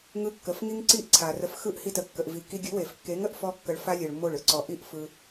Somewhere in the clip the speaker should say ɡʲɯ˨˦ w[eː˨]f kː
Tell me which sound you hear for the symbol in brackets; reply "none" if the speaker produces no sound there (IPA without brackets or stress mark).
e˨